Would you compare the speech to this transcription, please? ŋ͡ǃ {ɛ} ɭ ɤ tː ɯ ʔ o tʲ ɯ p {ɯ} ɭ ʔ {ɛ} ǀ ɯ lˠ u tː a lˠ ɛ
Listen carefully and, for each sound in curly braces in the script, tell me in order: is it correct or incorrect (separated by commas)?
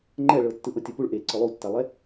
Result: correct, incorrect, incorrect